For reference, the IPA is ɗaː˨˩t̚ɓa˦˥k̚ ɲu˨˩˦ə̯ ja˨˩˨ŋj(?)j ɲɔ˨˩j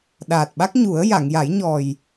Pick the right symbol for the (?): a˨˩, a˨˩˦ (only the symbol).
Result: a˨˩˦